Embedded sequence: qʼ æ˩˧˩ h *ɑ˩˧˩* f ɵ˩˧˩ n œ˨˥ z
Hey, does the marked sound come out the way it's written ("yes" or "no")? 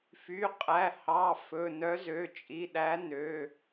yes